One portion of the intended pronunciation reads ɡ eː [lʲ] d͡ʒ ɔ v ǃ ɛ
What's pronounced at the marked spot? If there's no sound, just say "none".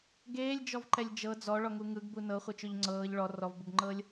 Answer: lʲ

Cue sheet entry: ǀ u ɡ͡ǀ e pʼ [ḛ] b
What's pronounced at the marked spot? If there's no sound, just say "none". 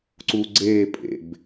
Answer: ḛ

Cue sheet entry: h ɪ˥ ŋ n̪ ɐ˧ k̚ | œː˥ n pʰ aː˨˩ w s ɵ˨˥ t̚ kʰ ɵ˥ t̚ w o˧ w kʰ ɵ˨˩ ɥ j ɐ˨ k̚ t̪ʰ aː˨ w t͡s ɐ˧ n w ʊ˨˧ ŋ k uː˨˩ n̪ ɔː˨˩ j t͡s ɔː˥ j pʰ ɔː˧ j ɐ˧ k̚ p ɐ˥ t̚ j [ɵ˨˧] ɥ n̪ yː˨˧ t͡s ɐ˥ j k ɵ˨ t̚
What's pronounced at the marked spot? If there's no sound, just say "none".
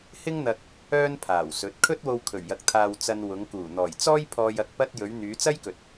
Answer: ɵ˨˧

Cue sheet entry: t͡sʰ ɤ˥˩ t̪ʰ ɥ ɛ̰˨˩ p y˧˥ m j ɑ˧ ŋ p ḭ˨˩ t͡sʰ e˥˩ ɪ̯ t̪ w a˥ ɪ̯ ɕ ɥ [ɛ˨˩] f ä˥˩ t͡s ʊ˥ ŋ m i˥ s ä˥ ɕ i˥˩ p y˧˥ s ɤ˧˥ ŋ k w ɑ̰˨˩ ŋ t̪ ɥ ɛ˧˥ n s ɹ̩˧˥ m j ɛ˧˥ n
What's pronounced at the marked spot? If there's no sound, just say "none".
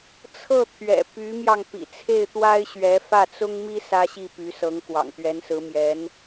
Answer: ɛ˧˥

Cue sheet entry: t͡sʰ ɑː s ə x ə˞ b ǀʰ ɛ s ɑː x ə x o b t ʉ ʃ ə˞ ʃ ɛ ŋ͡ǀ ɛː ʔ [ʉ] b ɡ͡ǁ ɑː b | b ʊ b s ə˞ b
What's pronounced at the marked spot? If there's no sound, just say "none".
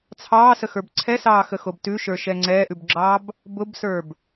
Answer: ʉ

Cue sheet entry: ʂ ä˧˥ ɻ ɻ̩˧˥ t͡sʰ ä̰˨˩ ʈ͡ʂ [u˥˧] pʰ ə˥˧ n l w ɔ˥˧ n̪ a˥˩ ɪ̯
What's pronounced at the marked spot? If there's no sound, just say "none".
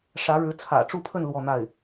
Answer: u˥˧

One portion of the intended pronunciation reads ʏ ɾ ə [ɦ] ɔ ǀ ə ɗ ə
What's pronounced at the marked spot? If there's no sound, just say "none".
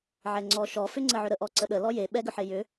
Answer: ʔ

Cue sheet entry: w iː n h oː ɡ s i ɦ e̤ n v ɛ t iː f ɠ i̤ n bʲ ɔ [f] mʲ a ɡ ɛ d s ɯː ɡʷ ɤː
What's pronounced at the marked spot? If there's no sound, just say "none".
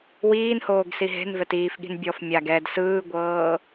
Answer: f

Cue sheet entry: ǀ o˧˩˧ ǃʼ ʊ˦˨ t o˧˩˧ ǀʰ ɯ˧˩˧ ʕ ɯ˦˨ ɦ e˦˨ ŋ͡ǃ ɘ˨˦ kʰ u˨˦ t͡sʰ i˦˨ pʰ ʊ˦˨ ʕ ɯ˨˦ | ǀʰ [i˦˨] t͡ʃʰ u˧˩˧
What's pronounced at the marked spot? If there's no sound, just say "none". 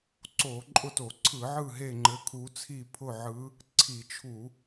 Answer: i˧˩˧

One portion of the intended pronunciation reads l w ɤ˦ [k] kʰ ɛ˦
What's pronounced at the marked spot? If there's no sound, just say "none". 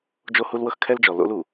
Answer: x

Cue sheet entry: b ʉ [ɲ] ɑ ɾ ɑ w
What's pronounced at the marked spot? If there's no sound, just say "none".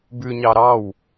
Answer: ɲ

